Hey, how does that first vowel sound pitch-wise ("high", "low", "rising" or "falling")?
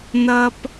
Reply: high